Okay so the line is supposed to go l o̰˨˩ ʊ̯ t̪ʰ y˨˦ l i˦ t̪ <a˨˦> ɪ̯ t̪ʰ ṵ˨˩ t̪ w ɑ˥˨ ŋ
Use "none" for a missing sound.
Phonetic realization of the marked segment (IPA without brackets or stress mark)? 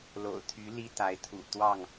a˨˦